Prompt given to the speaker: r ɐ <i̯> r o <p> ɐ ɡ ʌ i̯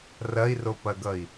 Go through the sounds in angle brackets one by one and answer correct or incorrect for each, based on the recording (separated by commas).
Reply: correct, correct